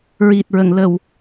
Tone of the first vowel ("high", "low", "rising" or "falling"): low